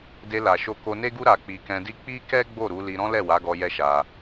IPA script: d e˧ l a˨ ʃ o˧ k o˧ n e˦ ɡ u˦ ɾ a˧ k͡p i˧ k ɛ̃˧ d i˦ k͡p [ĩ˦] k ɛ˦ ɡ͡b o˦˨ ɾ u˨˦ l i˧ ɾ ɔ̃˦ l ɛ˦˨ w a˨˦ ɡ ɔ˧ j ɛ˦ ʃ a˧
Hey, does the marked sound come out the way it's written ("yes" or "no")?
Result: no